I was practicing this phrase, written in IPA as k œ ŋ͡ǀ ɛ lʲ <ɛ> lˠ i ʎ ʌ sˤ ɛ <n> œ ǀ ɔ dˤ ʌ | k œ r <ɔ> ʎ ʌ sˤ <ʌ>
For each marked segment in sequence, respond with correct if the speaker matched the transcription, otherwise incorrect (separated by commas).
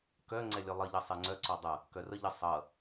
incorrect, incorrect, incorrect, correct